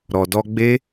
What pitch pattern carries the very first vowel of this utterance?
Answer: low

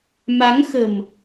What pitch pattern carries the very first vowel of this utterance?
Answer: rising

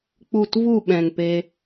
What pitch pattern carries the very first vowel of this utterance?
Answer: falling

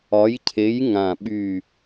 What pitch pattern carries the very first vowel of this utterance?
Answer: rising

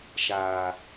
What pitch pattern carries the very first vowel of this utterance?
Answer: low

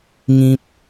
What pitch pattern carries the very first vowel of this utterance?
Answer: high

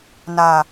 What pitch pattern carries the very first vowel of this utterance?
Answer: low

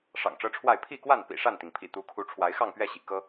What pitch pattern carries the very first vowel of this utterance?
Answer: low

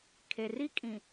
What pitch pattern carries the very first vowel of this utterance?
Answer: low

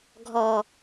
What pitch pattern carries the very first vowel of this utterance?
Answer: low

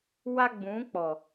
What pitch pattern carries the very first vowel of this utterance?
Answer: high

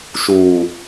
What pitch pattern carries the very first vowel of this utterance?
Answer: low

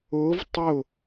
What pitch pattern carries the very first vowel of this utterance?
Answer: rising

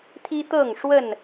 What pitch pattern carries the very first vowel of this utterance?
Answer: high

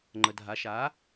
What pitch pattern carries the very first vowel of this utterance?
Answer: low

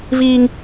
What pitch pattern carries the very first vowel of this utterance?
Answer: high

